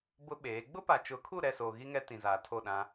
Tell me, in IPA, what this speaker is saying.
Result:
b ʊ˦ ɓ eː˨˦ ɡ͡b ʊ˦ p a˨ t͡ʃ ʊ˨˦ kʰ u˦˨ ɾ ɛ˦˨ s oː˨ ɣ i˦ ŋ ɛ˦ t ĩ˨ z aː˨ tʰ o˦˨ ɗ ã˦

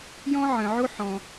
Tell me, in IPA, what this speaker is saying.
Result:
j ɔ̃˥ ʕ ə̃˩ ʕ o˥ ħ ɔ̃˩

